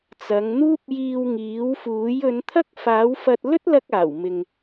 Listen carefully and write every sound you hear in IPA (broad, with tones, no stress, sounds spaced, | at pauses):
t͡s ɐ˨˧ ŋ n̪ uː˥ p̚ j iː˧ w ŋ iː˨˥ w f uː˨˥ j ɵ˨˧ n t̪ʰ ɐ˥ k̚ f aː˨˥ w f ɐ˧ t̚ l ɵ˥ t̚ l ɐ˧ k̚ aː˨˩ w m ɪ˨ ŋ